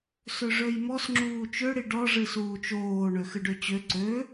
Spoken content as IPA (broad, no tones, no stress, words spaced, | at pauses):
søʐøjmɔs ŋ͡ǁuːt͡ʃøɽi ɖɔ ʐɨsuːt͡ʃoː ɳøxɨɖøt͡ɕø ǀø